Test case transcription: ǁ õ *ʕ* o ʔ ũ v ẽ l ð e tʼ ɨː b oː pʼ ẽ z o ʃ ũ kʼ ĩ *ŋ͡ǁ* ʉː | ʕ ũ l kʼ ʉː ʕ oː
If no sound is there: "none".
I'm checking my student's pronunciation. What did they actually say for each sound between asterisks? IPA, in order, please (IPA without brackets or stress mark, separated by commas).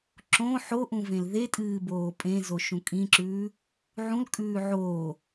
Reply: ħ, ǁ